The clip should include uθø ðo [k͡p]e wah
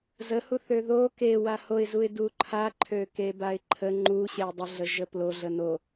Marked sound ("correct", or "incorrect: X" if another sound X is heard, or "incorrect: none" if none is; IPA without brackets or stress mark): incorrect: k